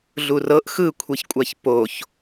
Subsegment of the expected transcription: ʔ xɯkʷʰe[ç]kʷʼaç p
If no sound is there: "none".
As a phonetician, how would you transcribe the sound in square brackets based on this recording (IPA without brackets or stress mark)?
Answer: ç